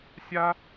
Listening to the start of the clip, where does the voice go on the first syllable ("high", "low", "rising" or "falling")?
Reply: high